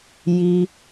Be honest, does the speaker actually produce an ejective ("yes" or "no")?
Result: no